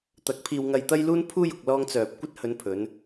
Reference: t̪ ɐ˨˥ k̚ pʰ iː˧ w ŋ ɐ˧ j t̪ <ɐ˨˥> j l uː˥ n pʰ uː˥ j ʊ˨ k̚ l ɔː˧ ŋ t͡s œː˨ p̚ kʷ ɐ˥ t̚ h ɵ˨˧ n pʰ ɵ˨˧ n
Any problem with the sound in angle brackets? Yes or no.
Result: yes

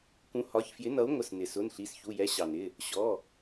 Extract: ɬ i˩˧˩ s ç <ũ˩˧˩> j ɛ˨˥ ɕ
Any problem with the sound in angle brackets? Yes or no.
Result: yes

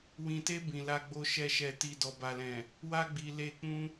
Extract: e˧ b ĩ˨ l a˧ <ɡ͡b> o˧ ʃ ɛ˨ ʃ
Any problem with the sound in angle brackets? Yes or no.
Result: no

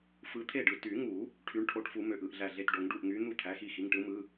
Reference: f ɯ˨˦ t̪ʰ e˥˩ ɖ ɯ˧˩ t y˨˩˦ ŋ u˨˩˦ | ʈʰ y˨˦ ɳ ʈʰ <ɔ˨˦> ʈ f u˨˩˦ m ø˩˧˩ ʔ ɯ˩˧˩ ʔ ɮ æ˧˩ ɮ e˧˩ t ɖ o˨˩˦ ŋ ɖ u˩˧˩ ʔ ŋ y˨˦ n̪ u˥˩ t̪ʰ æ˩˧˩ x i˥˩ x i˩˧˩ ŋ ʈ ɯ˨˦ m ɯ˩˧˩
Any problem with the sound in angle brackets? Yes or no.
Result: yes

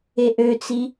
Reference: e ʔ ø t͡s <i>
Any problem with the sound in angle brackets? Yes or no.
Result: no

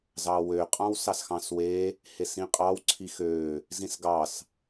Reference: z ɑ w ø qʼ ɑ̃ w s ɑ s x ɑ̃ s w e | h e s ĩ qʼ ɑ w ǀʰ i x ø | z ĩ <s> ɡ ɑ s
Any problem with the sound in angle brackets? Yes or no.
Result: no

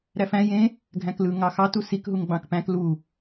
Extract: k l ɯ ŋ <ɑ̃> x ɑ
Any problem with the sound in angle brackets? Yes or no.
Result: yes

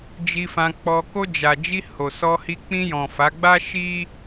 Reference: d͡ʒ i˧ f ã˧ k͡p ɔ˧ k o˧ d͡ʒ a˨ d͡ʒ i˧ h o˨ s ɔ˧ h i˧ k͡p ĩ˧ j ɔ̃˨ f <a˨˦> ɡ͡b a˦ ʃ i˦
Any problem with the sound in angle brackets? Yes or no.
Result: no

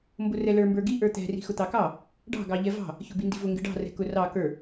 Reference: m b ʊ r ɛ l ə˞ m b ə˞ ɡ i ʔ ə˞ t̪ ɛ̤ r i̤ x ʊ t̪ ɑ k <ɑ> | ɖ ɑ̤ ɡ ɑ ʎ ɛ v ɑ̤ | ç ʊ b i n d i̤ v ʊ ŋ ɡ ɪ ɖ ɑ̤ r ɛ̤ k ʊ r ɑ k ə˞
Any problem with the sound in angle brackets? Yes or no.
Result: no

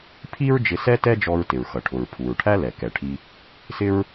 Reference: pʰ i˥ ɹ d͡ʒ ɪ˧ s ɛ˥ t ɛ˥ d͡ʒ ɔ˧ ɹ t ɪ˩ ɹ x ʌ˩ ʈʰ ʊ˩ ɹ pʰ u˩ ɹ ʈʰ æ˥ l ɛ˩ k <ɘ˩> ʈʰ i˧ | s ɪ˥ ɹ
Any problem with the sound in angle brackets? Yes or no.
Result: yes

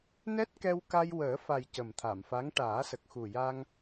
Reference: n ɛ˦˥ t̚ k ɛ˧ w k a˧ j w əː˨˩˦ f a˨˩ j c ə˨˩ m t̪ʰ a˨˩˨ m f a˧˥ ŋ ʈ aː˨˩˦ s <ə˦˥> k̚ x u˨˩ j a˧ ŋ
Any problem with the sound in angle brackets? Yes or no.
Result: yes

